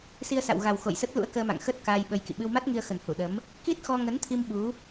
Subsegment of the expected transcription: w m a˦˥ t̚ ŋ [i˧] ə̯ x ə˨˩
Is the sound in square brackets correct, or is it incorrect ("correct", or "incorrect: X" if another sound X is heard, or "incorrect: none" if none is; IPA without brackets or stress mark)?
correct